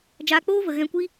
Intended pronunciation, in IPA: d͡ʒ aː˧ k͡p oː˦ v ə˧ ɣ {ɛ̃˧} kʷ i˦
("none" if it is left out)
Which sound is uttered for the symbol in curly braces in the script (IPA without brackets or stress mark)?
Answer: ɛ̃˧